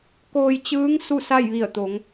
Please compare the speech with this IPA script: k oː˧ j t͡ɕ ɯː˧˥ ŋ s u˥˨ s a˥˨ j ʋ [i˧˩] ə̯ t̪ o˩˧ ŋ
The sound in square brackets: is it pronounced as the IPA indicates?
yes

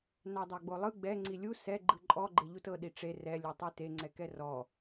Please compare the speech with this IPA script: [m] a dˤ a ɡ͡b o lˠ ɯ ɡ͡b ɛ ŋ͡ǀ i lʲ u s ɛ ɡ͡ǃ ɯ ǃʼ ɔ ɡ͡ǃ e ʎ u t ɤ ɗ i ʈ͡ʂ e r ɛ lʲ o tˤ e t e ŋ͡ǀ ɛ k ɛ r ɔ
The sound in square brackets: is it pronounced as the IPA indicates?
no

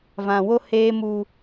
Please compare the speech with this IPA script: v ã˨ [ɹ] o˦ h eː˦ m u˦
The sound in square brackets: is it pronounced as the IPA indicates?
no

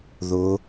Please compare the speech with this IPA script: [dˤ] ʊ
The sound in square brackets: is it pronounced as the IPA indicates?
no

